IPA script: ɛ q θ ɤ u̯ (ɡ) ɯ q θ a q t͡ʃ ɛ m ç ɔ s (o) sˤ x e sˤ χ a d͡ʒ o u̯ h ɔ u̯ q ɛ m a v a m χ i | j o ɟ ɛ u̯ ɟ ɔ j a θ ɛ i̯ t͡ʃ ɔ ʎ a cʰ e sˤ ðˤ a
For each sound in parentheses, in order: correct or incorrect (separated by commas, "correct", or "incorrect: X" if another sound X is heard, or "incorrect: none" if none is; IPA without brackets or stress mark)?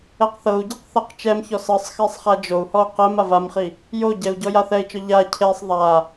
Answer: incorrect: ɟ, incorrect: ɤ